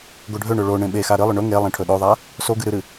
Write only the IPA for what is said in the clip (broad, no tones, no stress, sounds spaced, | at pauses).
ɡ o ɖʱ ø ɳ ø ɭ o ɳ ẽ ɓ e x a ɾ ɨ lˠ ɵ ɳ ɵ ŋ e lˠ ẽ ʈʰ ɵ ɗ o ðˤ a | s o ɡ ɨ ɾ ɨ ɾ ɨ